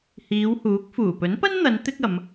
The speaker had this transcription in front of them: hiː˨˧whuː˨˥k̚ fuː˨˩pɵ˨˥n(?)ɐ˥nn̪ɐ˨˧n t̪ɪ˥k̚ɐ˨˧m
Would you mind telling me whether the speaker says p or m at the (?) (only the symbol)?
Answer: p